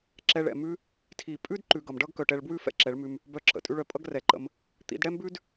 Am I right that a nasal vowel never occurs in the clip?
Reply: yes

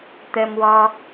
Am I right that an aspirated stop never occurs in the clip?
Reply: yes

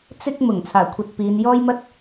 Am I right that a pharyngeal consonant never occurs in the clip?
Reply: yes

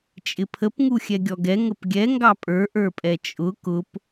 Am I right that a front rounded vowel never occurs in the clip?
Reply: yes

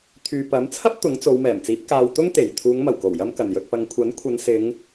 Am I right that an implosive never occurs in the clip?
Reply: yes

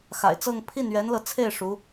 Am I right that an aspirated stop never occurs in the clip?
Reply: no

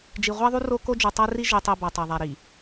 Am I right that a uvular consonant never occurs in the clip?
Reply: no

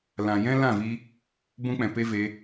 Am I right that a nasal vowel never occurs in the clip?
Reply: no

